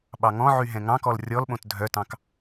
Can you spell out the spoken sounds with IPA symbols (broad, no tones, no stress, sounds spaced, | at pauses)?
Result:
ɓ ɑ ŋ ɔ̃ ʕ y ɦ ɛ̃ ŋ ɑ̃ k ɔ l rʲ ɔ l ɓ õ t dʱ œ t ɑ̃ k